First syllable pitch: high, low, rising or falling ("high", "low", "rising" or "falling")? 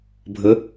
rising